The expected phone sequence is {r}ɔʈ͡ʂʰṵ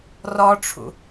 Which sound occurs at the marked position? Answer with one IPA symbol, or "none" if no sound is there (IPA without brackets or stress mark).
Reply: r